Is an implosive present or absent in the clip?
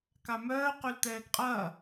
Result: absent